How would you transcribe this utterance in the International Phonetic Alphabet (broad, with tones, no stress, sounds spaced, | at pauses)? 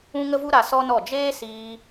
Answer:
ũ˦ ŋ ə˦ v u˦ ɾ a˧ s ɔ˦ n ɔ˦˨ d͡ʒ eː˦ s iː˧